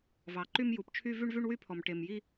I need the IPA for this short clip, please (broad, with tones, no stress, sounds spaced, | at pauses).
v ɑ˨ ǃ y˦ m j u˨ p t͡ʃʰ y˦ v y˦ ɳ v y˦ ɳ w y˦ pʰ ɔ˨ m ʈ e˨ m j i˦